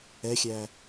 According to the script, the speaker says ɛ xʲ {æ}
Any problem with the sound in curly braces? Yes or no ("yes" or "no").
no